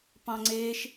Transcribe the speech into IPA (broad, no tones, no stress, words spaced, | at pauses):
pɑ̃ŋ͡ǀeːʃ